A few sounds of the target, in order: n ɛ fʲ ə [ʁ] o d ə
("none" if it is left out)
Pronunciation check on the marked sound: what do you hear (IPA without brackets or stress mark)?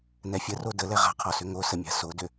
r